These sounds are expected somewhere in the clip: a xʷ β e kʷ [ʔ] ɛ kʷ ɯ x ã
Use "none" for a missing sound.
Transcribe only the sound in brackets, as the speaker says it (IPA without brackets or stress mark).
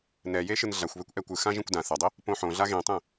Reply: ʔ